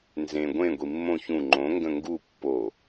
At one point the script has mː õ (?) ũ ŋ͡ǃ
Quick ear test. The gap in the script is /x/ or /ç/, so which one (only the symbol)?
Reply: ç